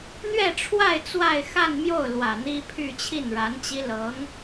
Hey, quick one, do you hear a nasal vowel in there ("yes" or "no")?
no